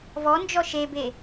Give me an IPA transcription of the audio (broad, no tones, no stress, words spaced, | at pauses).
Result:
vɔnd͡ʒɔ ʃebe